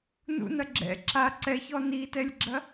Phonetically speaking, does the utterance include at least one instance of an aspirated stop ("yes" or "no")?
no